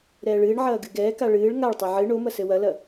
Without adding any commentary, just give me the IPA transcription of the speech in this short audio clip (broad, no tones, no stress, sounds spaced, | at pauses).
ɾ ɛː ɭ ɨː ɳ ʕ ɐː ɡ ɨ ɡ ɛː k a ɭ ɨː ɭ ŋ a ɭ tˤ ɐ ʕ ɨ ɳ o m ɐ s ɘ w ɐ l ɐ